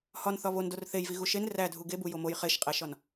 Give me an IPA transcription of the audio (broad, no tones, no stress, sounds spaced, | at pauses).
h ɒ n θ ɒ β o n d o r θ e j v i ɣ u ʃ e n r æ dʱ u ɡ e b u j o m o j χ e ʃ qʼ æ ʃ ɒ n